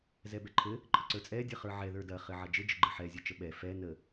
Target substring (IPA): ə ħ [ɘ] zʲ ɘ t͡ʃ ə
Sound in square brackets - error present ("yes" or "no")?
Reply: yes